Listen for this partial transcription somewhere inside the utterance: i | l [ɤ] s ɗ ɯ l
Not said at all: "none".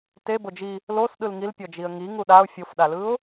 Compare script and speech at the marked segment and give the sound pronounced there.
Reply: o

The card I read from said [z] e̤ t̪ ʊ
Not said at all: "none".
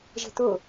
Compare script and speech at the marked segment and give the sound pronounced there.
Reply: ʒ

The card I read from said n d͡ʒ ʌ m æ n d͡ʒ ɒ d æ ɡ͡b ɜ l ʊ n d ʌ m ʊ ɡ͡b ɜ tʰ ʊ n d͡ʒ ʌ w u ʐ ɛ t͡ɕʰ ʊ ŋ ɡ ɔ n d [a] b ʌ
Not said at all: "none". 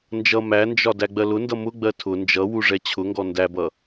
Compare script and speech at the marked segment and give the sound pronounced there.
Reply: æ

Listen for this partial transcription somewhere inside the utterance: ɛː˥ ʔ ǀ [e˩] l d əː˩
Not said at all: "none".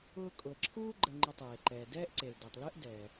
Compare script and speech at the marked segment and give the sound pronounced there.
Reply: e˩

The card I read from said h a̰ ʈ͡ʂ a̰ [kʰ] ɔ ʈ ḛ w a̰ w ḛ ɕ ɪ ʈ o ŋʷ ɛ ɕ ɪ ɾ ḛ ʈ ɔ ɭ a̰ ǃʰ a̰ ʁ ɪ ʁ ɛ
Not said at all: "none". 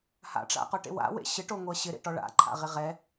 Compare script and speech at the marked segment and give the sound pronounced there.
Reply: q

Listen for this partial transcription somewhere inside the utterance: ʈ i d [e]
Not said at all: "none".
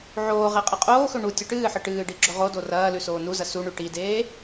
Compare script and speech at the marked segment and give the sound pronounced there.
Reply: eː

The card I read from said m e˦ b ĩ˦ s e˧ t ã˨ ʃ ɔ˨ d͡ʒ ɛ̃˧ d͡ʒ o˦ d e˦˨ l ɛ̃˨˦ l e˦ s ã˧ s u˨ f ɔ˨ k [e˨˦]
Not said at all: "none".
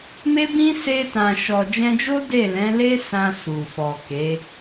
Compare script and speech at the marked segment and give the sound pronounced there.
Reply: e˨˦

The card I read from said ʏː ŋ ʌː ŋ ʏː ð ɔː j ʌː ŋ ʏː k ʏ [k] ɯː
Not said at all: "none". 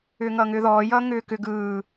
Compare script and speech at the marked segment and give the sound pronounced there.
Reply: ɡ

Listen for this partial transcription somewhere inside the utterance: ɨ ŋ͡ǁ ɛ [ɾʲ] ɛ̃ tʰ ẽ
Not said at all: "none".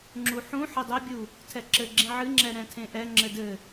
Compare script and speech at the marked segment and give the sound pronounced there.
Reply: ɾ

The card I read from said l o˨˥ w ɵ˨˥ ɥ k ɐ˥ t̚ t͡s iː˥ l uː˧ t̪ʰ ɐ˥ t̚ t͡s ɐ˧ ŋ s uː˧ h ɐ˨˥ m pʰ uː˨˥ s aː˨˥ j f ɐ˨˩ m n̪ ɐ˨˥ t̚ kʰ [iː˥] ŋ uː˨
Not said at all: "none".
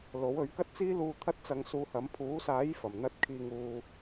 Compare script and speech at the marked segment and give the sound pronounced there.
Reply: iː˨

